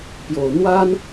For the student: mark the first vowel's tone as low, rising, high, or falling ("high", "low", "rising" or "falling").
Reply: low